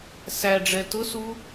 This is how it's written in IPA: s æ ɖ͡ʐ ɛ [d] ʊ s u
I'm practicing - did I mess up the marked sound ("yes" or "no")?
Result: yes